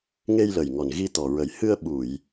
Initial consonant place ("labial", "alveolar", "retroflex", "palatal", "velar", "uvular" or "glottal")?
velar